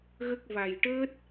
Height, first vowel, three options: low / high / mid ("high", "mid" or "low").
mid